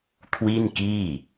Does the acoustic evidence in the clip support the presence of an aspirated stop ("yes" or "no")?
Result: yes